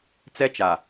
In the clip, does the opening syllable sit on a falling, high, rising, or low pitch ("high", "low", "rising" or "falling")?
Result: high